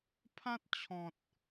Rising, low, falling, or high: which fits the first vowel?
high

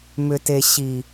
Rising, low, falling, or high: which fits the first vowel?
low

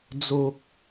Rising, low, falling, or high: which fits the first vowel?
low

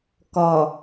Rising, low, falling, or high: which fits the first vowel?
low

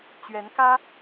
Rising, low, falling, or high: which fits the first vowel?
rising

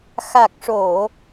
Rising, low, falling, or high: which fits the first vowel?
low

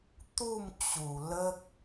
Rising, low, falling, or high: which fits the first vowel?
falling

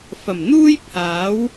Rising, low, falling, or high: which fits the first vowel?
low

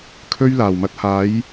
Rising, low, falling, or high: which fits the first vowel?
high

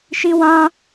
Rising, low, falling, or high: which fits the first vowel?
high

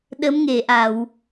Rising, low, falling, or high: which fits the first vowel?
rising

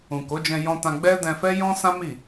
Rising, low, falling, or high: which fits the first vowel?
low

